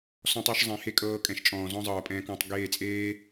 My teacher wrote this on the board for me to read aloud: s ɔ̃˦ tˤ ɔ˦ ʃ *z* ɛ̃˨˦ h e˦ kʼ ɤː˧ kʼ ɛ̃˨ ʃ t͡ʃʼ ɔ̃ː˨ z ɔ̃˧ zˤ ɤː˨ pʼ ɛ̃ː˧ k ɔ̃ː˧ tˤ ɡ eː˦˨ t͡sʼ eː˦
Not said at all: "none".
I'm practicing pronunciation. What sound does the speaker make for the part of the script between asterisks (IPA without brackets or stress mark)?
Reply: zˤ